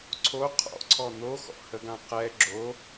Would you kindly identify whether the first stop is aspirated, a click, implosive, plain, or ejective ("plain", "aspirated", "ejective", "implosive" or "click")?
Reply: click